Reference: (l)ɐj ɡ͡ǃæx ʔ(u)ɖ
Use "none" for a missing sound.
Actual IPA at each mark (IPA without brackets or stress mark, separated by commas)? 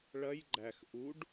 ɭ, u